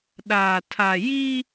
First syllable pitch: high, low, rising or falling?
low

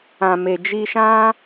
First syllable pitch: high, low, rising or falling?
low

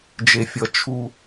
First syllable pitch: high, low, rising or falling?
low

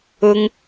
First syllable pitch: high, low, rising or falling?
high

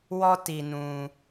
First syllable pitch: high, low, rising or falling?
high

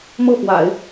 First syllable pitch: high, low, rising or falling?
falling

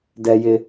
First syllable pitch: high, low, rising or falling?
high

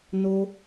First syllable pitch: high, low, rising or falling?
low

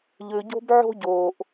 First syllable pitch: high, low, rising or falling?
low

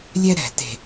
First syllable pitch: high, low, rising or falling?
high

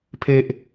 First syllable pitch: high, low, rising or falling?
high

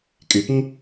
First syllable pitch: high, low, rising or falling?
low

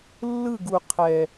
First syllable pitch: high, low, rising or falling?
falling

